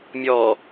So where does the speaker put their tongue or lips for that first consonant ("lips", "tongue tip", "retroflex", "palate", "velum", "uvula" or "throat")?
lips